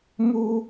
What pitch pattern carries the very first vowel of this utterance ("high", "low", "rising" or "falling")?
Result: high